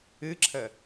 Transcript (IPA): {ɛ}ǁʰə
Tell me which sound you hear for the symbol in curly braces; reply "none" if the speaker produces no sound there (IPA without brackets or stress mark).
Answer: ɨ